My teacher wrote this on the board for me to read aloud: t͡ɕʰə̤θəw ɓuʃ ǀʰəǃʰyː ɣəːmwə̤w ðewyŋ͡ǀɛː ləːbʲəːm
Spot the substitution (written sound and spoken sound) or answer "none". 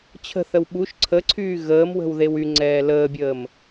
ǃʰ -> ǀʰ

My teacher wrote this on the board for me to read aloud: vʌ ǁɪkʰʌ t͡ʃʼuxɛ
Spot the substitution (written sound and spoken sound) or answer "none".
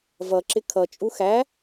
ɛ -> æ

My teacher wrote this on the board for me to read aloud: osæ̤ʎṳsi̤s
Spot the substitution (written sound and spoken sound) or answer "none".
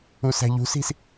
o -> u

